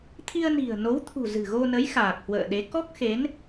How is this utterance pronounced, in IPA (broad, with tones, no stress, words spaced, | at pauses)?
t̪ʰi˧ə̯ni̤˨˩ə̯no˨˦wt̪ʰṳ˨˩ zɨ̤˨˩ɣo˧nə˨˦j xaː˨˩k̚hwə̰ː˧˨ɗe˨˦ kɔ˦˥k̚xe˨˦n